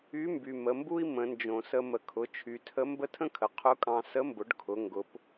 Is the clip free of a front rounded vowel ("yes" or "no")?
no